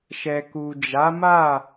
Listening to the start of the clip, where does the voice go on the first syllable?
low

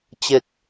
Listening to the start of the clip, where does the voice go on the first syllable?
falling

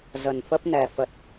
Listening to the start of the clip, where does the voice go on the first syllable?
low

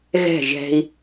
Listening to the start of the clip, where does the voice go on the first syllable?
falling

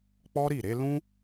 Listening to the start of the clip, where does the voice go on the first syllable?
high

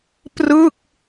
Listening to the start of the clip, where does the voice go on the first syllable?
falling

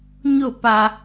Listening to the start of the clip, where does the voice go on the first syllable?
falling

